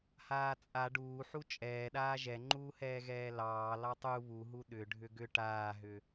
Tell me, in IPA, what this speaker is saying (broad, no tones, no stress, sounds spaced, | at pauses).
h aː t͡sʼ a ɖ uː ħ u t͡ʃʼ ɛː ɗ aː ʒ ɛ ŋ͡ǃ uː h ɛː ɣ ɛː l ɑː l ɑ tˤ u β u ɦ u ɗ ʏ ɖʱ ʏ ɡ ʏ ʈ aː ɦ ʏ